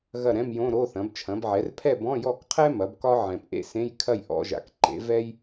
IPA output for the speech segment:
ɣɐ˥˨ɾɛ̃˧˥˧mjõ˧˥˧ ɾo˧˥˧θɐ̃˩˥b t͡ʃʰɐ̃˩˥bʕɛ˩˥r pʰɛ˥˨bɔ̃˧˥˧jɔ˥˨kqʰɛ˥ mɐ˩˥bkɒ˥ ʕɛ̃˨pʔḛ˥sẽ˧˥˧j kʰɐ˥˨jʔɔ̰˧˥˧ʒa̰˨k ǃḛ˩˥ vɛ˥j

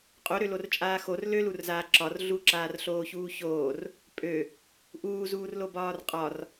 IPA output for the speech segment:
qʼoɾølort͡ʃʼaː xor lølurzaː ǁɒr ɮuǁaːrɬoːçuː çoːr | pʼø | ʔuːzuːrlobɒːr qʼɒr

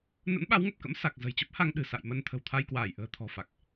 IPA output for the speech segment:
nə̰˧˥nɓa˨˦wŋə˨˩p̚kə̰˧˥m sa˨˩k̚ zə̤˨˩jt͡ɕə˦˥p̚ ha˧ŋ ɗɨ̤˨˩sa̰˧˨jmə˧n t̪ʰə̤˨˩wt̪ʰa˧jkwaː˧˩jʔə̤ː˨˩ t̪ʰɔ̤˨˩fa˨˩k̚

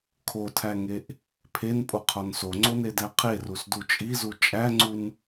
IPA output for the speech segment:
kʰotʰæŋeʔ | pʰenpʼoqʰɒn soŋ͡ǀonedæ qʰerusdu t͡ʃʼizu t͡ʃʼæŋ͡ǀun

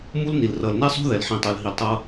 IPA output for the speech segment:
mu˦lni˨l rʌ˨l nɛ˦sˤo̤˦ðɛ˨l ħĩ˨tˤo˨l ɦi˨ltˤʌ˦

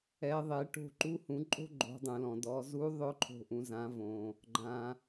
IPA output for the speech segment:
ɛ˩˧ðˤe˩˧ʈo̤˧ ǃu˧hũ˩˧ ǃʼo̤˥ɡ͡ǃo̤˩˧dˤũ˩lɔ̃˩ dɔ˩˧ zu˧˥ðˤʊ˧˥ ǃʰo̤˧ʔũ˩˧ zã˩˧ võ˩ | ɡ͡ǃã˩

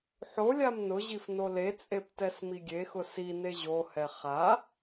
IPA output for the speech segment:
ħo lʲamnʊʑif nolet͡sʼep tɛsmiɡʲexʊ sine ʑohɛ χa

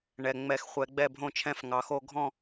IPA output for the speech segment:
ɳɛ˩ ŋ͡mɛ˧˩˧xχʷɛ˩˧ɡ͡bɛ˥˩ bʱõ˥˩t͡ʃʰɛ̃˥˩fŋɑ˩˧xo˥˧ ɡʱɔ̃˥˧

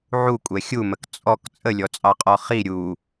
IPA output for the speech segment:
ʕukʷʼɛ xʲumək t͡sʼɔk t͡sʼəlʲɔt͡sʼɑqʼɔ χi ɾʲu

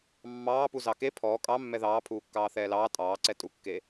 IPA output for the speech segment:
mːɑːpu zɑke pʰɔː kʼɑmːɛ ðɑːpʰuːkːɑː θɛːlɑː tʼɑːǀɛ tʼukːe

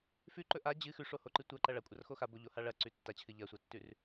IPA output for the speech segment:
fʉǃɵ ʔa d͡ʑɨ xʉʂohoǃɨ tʷɐǃɐ ɭɐkʷʼɐrxo xaboʎoha ɭɐǀʉ tːat͡ɕʰɨ ʎɐsʷɐtːʉr

